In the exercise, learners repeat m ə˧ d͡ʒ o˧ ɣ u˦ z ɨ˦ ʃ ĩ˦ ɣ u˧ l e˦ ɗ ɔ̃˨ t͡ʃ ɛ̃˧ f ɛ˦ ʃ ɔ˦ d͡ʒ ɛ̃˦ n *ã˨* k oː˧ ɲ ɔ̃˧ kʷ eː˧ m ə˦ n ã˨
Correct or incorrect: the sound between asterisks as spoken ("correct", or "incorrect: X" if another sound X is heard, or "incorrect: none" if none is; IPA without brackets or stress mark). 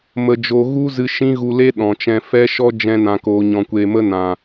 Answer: incorrect: ã˧